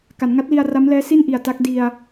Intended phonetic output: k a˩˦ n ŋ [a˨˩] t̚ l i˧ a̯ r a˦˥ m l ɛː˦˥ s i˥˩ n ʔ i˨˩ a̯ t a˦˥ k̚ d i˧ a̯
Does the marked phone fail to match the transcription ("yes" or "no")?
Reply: yes